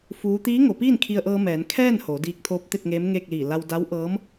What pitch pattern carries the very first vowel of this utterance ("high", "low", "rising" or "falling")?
rising